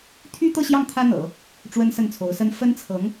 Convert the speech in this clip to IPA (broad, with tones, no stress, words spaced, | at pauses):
t̪ʰy˥t̪ɤ˥˧ɕjɑ˥˩ŋ t̪ʰä˥n̪ɤ̰˨˩˦ | ʈ͡ʂwə˥nsə˥˩nt͡sʰo˧˥ʊ̯sə˥n fə˥nt͡sʰɤ˧˥ŋ